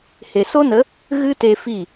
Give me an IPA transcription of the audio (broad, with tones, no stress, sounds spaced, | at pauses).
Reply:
h e˨ s o˦ n ə˨˦ | ɣ ɨ˦ t e˧ f i˦˨